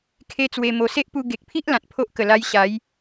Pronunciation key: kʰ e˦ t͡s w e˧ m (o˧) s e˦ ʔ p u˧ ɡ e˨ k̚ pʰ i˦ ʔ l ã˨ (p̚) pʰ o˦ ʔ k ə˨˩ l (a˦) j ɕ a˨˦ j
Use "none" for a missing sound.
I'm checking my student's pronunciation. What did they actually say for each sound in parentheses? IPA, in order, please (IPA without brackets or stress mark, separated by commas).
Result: o˧, t̚, a˦